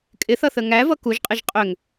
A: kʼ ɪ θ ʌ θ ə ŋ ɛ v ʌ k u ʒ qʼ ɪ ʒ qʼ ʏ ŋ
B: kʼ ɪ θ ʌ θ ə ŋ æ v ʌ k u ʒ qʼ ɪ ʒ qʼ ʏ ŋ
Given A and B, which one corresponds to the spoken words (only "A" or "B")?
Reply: B